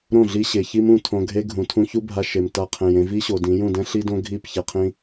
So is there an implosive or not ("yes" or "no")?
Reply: no